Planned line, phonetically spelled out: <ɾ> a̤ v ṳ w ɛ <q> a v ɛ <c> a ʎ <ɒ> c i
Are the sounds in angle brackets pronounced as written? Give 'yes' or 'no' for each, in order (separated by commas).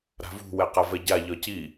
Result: yes, yes, no, yes